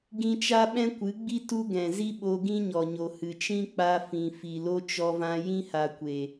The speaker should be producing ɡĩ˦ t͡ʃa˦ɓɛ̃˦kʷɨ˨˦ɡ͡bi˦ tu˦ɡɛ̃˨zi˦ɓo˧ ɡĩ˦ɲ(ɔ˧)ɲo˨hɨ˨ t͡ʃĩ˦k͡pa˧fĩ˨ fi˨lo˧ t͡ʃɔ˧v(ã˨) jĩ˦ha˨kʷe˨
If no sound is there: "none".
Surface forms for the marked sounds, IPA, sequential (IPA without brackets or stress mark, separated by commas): ɔ˨, ã˧